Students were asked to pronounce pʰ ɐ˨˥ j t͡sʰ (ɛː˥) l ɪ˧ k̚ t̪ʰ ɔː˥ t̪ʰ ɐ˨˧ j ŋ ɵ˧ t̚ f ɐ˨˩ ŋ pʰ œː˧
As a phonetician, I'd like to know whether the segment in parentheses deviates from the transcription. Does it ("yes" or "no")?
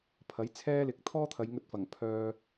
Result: no